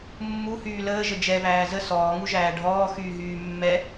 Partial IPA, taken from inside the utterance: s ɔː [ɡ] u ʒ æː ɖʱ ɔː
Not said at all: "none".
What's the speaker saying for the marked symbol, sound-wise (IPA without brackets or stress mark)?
ŋ